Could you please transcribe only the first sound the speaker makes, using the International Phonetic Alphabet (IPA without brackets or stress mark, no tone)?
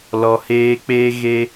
l